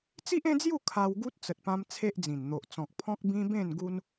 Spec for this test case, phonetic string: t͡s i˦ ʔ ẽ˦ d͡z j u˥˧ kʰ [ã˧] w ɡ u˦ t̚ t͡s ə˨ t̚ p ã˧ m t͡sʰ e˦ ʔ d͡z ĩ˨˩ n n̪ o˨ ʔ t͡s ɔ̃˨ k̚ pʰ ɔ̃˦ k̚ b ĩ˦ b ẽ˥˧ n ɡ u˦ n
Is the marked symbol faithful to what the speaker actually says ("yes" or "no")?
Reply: no